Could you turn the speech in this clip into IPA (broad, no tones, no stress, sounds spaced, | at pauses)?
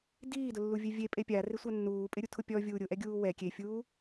d iː d ʊ lː u vʲ e vʲ e pʼ e pʲ a r ɪ sʷ a nː uː pʼ ɪ ɾʲ u tʰ ʊ pʲ ɔ vʲ uː ɾʲ ʊ ʔ ɛ ɡʲ uː w ɛ kʲ e fʲ uː